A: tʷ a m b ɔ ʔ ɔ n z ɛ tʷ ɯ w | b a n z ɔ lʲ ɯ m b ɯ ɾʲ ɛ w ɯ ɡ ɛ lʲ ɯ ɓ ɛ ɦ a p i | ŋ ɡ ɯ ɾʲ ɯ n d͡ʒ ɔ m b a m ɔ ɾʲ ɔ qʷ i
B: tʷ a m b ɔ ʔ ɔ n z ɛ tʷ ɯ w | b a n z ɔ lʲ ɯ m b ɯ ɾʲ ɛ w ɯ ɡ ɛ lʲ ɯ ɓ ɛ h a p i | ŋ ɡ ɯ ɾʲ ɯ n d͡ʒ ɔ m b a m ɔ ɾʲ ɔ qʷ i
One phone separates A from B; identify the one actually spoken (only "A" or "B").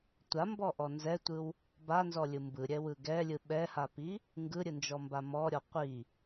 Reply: B